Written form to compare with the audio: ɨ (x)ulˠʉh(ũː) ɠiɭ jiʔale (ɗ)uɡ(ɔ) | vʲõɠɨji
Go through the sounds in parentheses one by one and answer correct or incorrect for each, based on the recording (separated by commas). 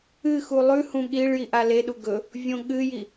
correct, incorrect, correct, incorrect